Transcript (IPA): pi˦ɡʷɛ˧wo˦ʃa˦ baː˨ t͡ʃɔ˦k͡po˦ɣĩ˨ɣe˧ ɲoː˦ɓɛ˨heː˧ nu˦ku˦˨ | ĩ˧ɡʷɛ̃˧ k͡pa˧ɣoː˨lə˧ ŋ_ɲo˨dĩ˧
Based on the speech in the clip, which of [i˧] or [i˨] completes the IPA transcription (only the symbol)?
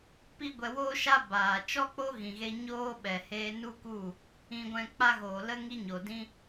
i˧